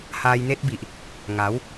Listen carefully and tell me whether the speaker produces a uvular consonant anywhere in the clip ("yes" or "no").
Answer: no